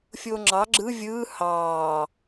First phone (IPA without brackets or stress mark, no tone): fʲ